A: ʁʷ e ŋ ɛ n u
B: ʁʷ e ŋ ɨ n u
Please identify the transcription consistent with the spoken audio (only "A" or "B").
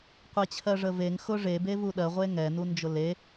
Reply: A